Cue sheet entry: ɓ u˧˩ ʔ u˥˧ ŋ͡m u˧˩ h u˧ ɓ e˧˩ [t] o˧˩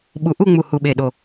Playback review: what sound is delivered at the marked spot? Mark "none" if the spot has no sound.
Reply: ɗ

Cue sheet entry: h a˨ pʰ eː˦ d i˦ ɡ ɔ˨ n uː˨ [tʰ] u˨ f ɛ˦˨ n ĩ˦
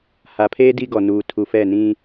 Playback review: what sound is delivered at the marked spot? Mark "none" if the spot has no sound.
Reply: tʰ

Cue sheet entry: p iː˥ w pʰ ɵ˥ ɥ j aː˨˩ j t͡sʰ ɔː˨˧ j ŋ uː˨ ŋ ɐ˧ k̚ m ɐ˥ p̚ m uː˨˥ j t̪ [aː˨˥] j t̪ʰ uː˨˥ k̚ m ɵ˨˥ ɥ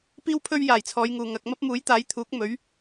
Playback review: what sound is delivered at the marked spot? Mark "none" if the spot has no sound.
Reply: aː˨˥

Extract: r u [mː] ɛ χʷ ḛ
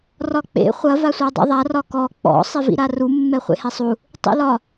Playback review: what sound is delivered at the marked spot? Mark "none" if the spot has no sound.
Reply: mː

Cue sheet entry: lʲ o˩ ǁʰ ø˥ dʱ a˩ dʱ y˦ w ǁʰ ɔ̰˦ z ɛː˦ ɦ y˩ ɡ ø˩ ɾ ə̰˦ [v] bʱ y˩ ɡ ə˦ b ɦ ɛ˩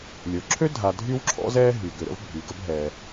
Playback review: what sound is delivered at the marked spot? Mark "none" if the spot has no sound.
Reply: v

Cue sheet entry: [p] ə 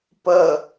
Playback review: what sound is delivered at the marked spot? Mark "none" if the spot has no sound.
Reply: p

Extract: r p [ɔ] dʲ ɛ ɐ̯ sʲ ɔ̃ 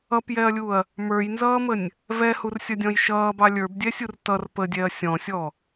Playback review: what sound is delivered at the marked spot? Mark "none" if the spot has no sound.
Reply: ə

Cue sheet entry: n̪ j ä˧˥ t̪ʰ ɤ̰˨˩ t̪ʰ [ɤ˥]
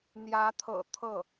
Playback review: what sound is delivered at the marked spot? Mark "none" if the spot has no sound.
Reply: ɤ˥˩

